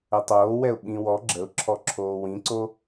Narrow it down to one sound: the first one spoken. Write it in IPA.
ə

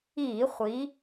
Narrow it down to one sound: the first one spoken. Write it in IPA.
iː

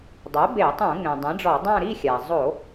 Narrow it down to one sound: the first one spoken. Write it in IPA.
dˤ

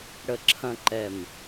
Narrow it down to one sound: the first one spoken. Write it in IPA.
ɽ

